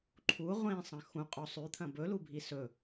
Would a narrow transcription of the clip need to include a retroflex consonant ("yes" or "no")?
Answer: no